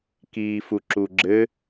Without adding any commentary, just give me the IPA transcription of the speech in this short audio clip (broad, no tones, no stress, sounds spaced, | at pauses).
k iː f u ǁ u ɡ͡ǁ ɘ